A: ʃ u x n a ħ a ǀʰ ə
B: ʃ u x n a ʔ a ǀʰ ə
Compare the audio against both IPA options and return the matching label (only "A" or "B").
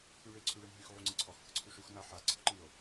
A